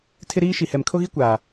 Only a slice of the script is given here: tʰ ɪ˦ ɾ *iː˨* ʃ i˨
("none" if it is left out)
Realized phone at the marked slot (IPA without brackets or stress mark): iː˦